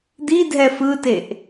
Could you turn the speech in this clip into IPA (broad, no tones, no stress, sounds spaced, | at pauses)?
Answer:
d̪ i dʱ ɛ f ɯ t e ʔ